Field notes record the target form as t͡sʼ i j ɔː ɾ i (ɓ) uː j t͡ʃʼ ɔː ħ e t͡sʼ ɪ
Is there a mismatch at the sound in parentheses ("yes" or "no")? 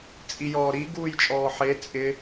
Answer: yes